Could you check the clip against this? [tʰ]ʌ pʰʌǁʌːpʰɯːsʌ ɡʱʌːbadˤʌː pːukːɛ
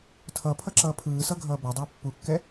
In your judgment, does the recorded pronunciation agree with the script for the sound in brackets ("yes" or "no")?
yes